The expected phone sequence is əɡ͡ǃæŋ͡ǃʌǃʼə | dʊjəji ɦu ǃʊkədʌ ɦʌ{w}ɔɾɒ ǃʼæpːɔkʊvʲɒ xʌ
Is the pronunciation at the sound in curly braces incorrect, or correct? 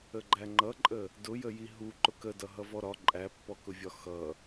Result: incorrect